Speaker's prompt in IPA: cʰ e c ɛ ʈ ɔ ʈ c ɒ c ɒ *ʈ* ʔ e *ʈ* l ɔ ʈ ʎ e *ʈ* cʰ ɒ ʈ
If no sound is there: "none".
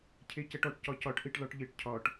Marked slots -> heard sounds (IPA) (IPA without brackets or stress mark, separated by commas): ʈ, ʈ, ʈ